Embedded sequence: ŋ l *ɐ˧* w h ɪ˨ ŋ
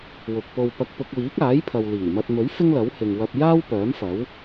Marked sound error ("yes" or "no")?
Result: yes